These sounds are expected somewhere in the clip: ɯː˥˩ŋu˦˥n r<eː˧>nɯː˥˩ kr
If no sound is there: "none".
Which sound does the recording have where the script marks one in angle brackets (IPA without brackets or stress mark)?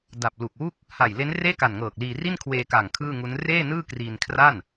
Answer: eː˥˩